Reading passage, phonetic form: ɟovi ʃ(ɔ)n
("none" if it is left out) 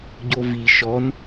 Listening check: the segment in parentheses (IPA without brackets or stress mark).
ɔ